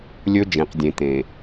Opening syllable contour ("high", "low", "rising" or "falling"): high